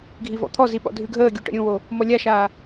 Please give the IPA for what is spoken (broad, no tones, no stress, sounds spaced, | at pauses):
ɡʱ i v ɔ̰ t̪ʰ ɔ z i ɓ ɔ̰ dʱ ʉ ɡʱ əː ɡʲ u ʈ ə̰ ɾʲ ũ w o | m ɔ lʲ a ʃ aː